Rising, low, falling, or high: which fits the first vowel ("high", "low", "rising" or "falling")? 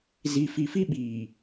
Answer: low